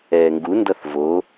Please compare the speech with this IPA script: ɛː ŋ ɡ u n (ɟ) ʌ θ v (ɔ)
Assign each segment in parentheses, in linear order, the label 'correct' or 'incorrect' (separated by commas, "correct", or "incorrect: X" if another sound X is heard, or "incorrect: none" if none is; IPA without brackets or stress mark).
incorrect: d, incorrect: o